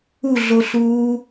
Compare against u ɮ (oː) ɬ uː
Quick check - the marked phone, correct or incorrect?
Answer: incorrect